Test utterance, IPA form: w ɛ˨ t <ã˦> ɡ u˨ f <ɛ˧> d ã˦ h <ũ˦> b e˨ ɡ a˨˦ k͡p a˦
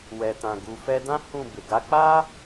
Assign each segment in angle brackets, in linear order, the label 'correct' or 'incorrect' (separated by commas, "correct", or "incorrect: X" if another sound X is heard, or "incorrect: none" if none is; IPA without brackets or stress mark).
incorrect: ã˨, correct, incorrect: ũ˦˨